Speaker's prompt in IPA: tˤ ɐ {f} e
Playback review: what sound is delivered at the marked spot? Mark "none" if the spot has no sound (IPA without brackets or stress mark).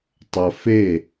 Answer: f